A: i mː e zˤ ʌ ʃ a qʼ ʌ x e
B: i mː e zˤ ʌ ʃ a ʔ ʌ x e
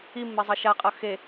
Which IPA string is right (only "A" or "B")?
A